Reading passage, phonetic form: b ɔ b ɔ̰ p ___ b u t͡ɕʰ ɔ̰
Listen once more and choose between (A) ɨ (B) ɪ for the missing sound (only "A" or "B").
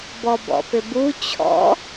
B